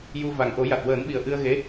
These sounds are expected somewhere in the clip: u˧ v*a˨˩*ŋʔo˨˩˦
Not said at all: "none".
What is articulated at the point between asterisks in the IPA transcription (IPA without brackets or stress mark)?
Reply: a˨˩